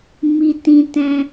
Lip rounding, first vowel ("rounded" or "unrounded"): unrounded